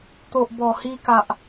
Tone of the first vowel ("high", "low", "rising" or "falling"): low